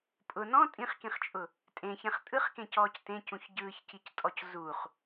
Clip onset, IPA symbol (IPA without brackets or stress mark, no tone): pʼ